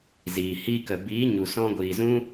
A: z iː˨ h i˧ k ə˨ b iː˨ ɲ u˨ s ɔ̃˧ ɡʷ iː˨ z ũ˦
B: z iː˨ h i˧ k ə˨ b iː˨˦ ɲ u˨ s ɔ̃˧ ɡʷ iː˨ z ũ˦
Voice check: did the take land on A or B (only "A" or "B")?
B